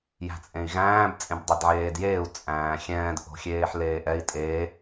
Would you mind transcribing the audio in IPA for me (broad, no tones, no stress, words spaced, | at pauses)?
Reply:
jæ̤t͡sʼẽi̯ɣæ̃ːb t͡sʼẽbdˤedʕeːdjeːu̯ t͡sʼæ̃ːxʲɛ̃ːd ʔo̤xʲeːħleːʔɛi̯ tʼe